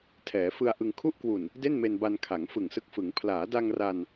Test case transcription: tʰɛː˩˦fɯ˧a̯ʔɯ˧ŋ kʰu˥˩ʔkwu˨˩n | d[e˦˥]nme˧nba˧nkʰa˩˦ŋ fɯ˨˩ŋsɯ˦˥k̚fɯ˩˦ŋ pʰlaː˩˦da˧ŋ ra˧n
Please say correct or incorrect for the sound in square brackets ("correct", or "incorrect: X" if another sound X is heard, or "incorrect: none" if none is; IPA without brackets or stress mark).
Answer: incorrect: e˥˩